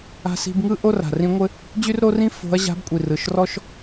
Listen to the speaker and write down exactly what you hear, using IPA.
a̤˥ s i̤˥ b ŋ ɯ˥ ʔ o˥ r a̤˨˩ r ĩ˧˥ ŋʷ ɘ˥ | d͡ʑ y˥ r ɾ o˥ r ĩ˥ f o̤˧˥ ɐ̯ ʑ a̤˧˥ b kʷʼ i˨˩ r ɯ˨˩ ʃ r ɔ˥ ʃ

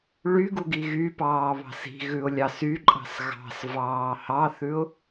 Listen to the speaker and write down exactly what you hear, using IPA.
ɭ y ɡ u ɡ i ɣ y p ɑː β ɑ̤ s i̤ ɣ ʉ ʊ̯ lʲ ɑ s y ǃʼ ɑ̤ s ɣ ɑ̤ s v ɑː h ɑ θ ʉ ʊ̯

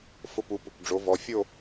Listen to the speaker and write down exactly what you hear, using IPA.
f ʊ˥˧ p u˨˥ p | ɖ͡ʐ o˨˥ v ɔ˨˥ fʲ o˥˧

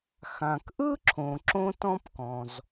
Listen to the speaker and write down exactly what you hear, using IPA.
x ã˩ k ʔ ɯ˥ ǁʰ õ˩ ǁ õ˥ t ɔ̃˥ p k ɔ̃˩ z

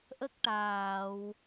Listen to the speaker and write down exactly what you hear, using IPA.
ʔ ə˦˥ k̚ ʈ aː˨˩˨ w

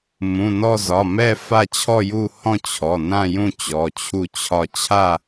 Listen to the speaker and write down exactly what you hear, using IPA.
m ũ˩˧˩ n ɔ˦˨ z ɒ˩˧˩ m ɛ˦˨ f a˦˨ t͡ɕʰ ɔ˦˨ j u˦˨ h ɔ̃˦˨ t͡ɕʰ ɔ˩˧˩ n ã˦˨ j ũ˦˨ t͡ɕ ɔ˩˧˩ t͡ɕʰ u˦˨ t͡ɕʰ ɒ˦˨ t͡ɕʰ a˦˨

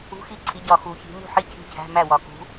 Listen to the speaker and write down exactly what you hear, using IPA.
ṳ˧˥˧ x i˥˩ ǀʰ i˨˦ ɟ ɒ˨ x u˨˩˦ ç i̤˨˦ m ṳ˥˩ ħ i˥˩ cʰ i̤˥˩ cʰ æ̤˧˥˧ m æ˥˩ w ɒ˨ k ṳ˨˦

